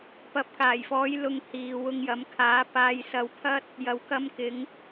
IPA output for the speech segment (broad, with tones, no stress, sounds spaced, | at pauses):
p ɐ˨ p̚ k aː˨˩ j f ɔː˨˧ j l ʊ˧ ŋ h iː˨ w ʊ˧ ŋ j ɐ˨˧ m kʰ aː˨˥ p aː˧ j s ɐ˧ w pʰ ɐ˥ t̚ | j ɐ˨ w k ɐ˧ m k ɪ˨˧ ŋ